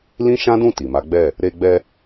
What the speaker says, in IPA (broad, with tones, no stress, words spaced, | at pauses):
lĩ˦ʃã˦dũ˦˨ ti˨ma˨˦ɡ͡bɛ˦˨ | ɾe˧ɡ͡bɛ˧